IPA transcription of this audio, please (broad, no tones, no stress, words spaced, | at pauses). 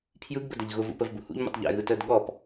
pʰjɯɡbə dəʎɣʊvṵ pəvbṵhṵʎmṵtˤ ʎɛ̰ɣɯ təːdɠɔp